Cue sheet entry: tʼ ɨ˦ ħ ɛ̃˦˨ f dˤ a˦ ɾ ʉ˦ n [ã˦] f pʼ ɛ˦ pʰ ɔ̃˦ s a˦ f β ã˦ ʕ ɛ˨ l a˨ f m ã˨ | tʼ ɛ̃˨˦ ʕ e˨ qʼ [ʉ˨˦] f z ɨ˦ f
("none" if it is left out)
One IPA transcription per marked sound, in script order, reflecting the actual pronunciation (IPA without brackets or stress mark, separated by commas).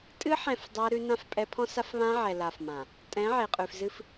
ã˦, ʉ˨